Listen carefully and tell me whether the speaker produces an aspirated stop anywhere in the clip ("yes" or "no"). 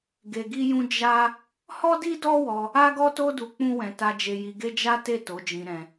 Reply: no